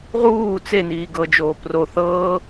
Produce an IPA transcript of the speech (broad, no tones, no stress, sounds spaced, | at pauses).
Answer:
ʁ uː t͡s e n iː ɡ ɤ d͡ʒ oː p r o θ ɤː